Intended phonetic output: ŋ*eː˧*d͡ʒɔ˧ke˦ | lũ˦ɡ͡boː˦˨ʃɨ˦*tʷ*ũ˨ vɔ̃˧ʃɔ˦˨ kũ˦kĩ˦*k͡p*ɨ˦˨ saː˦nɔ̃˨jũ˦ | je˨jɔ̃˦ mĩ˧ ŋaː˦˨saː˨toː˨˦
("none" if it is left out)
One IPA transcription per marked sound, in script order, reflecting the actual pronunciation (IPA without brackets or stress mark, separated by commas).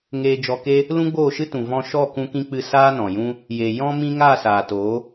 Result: eː˧, t, k͡p